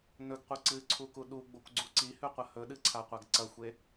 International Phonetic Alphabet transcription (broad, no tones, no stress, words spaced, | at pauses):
nɵɡqʷe ǀɨǀʰu kuɗuɡ͡bokʷ ɡ͡ǀuǀihʉ qʷɐhɵɗɨ ǀʰaqʷaɡǀɐxʷe